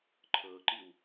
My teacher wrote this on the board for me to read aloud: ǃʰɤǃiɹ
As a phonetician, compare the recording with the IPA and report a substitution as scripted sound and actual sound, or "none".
ɹ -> w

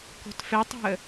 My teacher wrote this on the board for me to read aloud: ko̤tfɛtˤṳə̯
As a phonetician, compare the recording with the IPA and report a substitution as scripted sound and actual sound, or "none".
none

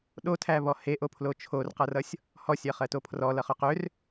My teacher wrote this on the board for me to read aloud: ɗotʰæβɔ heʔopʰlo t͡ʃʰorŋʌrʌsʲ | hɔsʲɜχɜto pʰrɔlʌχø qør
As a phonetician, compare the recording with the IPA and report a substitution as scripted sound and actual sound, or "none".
ŋ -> q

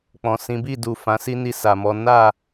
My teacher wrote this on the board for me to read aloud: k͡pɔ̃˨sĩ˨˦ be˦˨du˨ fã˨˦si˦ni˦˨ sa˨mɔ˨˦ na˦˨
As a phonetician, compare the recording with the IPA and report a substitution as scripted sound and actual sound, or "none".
e˦˨ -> i˦˨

